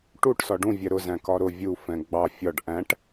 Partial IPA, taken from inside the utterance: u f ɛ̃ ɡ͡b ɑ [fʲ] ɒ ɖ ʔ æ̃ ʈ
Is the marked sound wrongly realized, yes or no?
no